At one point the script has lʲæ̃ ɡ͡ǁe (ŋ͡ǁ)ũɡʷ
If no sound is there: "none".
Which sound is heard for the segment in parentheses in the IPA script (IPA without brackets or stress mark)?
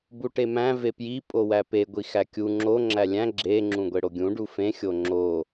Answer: ŋ͡ǁ